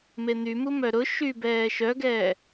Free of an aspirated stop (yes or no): yes